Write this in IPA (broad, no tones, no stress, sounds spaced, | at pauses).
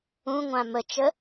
ũ ŋʷ ã m ə t͡ʃ ə